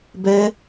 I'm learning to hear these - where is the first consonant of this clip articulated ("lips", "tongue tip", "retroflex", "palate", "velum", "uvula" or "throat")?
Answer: lips